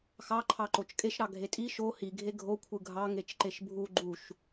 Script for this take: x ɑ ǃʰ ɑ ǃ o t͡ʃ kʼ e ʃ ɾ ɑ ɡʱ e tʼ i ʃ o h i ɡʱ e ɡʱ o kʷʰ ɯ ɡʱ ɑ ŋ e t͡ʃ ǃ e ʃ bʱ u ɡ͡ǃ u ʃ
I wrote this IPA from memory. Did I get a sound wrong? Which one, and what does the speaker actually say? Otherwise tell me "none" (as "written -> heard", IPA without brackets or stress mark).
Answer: none